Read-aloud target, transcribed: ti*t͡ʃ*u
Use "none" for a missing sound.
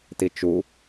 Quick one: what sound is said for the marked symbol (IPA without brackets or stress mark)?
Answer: t͡ʃ